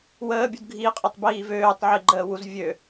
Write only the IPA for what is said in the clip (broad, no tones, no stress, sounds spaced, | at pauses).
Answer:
w əː bʲ u d ɡʱ i qʼ ə tˤ b iː v øː tˤ ʕ i ɡ͡ǃ əː w u z vʲ ø